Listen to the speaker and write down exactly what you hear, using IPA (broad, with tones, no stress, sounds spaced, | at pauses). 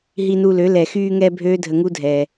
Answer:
ɦ i˧ n u˧ l ø˨˦ l ɛ˨ x yː˧ ŋ ɛ˧ bʱ øː˦ dʱ ə˧ ŋ u˦ dʱ ɛ˧